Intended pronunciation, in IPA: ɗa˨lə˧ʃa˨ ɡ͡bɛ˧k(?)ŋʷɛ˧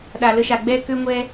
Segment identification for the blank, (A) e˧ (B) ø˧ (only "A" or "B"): B